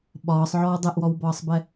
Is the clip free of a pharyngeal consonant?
no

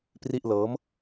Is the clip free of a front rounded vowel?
yes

